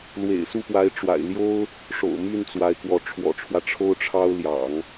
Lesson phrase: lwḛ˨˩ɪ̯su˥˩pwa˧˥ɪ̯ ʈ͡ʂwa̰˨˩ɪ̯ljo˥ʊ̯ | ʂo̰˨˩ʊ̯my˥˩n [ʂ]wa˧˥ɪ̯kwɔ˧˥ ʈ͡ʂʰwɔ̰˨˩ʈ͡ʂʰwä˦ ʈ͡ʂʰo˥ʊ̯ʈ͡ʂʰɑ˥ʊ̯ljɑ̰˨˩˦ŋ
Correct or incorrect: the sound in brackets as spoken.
incorrect: t͡s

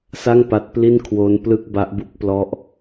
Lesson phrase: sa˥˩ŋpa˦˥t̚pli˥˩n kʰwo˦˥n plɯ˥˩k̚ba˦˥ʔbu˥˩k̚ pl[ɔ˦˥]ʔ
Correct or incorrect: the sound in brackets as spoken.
correct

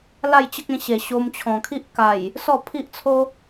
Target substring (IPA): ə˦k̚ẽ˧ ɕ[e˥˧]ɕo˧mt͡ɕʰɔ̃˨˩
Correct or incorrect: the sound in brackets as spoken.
incorrect: e˨˩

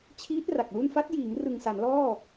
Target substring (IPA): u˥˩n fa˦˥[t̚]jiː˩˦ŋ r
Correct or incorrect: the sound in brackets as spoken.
correct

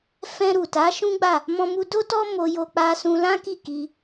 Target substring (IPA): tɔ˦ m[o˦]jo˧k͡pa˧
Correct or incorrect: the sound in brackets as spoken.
incorrect: o˧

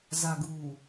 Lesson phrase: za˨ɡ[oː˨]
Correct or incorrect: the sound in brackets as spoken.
incorrect: uː˨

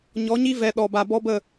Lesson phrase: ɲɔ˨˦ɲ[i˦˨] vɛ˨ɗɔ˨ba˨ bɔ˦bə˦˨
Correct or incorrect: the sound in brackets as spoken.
incorrect: i˦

